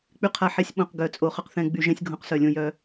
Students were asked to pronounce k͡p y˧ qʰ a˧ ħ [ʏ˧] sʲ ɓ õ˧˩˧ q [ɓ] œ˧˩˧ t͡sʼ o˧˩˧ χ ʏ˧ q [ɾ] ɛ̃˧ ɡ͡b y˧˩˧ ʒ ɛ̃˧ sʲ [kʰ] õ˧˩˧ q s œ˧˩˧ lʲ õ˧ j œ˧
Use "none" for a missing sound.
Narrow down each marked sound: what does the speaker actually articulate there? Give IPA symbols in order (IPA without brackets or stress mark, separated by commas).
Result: ɛ˧, ɡ, θ, ɡʱ